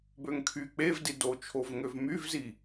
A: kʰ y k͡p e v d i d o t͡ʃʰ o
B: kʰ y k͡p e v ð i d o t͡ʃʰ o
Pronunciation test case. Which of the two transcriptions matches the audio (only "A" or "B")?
A